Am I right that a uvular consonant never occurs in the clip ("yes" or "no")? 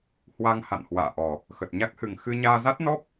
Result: yes